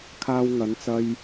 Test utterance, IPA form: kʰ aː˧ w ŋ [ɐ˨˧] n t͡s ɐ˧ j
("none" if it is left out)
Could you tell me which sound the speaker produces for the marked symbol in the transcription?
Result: ɐ˨˧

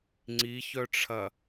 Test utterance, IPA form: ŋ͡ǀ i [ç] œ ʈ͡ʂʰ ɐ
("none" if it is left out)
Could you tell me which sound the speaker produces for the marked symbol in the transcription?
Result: ç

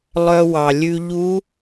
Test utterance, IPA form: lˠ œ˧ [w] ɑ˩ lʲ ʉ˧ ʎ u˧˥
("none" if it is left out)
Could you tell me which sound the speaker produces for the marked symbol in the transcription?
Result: w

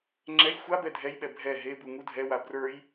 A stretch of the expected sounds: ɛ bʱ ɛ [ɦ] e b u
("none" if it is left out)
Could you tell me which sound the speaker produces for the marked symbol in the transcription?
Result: ɦ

